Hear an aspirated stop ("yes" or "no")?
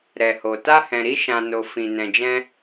no